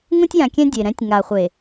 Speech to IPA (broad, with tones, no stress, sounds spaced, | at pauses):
ŋ ũ˦ tʲ j ã˨ kʲ ɛ̃˦ dʲ e˨ ɾ ɛ̃˨˦ tʲ ŋ a˨ χʷ e˨